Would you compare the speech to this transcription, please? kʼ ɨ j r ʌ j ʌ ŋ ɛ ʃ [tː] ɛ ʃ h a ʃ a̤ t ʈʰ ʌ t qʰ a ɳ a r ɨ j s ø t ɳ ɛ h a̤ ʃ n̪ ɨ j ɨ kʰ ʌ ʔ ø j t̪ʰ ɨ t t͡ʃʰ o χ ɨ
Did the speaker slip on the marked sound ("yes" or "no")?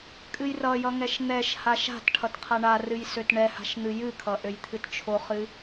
yes